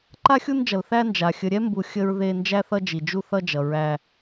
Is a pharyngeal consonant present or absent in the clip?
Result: absent